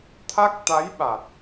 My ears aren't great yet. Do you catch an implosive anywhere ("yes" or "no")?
yes